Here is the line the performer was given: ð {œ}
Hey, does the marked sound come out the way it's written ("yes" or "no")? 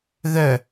yes